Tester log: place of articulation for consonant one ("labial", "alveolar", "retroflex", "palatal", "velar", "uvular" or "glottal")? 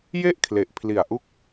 palatal